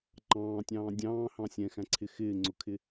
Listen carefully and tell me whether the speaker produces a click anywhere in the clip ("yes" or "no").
yes